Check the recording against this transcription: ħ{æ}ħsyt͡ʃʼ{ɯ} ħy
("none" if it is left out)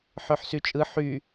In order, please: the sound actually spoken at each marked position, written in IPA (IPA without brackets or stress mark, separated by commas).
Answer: œ, ɯ